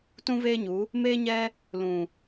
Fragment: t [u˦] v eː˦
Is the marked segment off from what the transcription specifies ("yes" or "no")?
yes